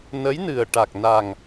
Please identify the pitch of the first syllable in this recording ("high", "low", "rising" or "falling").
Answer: rising